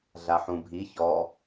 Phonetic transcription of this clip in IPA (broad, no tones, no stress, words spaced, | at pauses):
ɮaħũbʱi çɔ